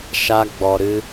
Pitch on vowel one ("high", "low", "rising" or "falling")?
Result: high